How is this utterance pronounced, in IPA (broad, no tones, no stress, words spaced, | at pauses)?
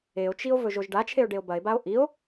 eo̯t͡ʃio̯ vɵʒoʒɖat͡ʃʰeo̯ ɖeo̯bɐe̯bao̯ ʔio̯